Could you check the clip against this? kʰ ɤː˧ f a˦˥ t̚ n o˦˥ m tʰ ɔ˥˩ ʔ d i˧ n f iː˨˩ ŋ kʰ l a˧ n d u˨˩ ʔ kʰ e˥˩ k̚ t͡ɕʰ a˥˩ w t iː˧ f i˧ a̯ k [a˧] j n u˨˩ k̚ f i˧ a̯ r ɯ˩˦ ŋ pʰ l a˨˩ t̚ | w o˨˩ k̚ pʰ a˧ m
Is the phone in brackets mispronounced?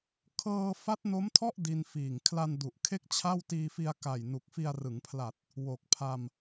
yes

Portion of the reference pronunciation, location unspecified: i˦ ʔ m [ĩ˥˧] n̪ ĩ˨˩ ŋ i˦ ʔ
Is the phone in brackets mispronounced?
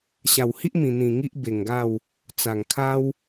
yes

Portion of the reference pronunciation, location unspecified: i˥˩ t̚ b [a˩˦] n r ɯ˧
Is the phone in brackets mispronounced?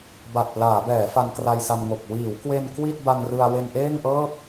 yes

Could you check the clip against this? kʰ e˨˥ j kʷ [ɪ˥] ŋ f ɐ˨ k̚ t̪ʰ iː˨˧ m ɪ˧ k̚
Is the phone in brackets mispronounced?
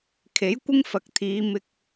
no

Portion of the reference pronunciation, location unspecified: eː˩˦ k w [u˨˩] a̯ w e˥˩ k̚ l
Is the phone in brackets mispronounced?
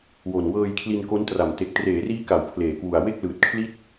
no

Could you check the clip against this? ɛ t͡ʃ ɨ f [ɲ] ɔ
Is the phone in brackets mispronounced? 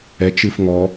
yes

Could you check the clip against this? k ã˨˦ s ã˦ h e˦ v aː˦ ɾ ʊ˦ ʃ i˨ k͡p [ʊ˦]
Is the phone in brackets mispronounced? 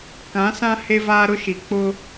no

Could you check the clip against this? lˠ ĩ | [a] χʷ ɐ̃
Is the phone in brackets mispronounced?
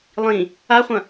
no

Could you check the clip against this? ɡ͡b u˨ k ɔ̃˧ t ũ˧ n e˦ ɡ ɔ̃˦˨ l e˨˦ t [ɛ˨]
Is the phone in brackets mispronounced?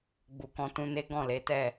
yes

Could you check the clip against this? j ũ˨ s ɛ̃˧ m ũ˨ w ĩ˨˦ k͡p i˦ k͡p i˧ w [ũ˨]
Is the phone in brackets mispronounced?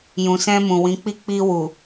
yes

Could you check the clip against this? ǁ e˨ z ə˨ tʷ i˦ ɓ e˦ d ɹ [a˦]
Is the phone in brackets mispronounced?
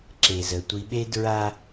no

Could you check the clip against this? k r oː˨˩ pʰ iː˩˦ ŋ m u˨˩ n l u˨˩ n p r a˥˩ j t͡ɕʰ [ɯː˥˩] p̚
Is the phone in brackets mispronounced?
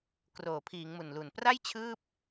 no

